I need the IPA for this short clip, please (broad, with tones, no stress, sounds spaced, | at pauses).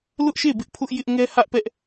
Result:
l ʊ˦ ʔ ʃ e˦˨ b ɪ˦ ʔ pʰ ʊ˦ ʔ j ɪ˦ ʔ ŋ ɛ˦ h ä˦ ʔ p ɛ˦ ʔ